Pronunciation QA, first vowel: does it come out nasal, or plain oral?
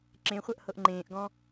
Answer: nasal